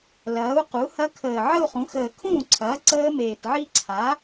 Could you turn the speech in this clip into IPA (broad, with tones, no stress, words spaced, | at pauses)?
lɐː˩˥u̯ qu˩˥hɐ˦˥ kʰəː˨˩ʕə˥˧u̯χũ˩˥ xəː˨˩kʰũː˥˩ǀʰɐː˩˥ ǀəː˦˥meː˨˩tʕi˥˧ ǀʰa˩˥